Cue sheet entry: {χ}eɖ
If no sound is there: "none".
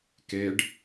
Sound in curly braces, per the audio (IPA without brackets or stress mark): k